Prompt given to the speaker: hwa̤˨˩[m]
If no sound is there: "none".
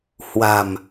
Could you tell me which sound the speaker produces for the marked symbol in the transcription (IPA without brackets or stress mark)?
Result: m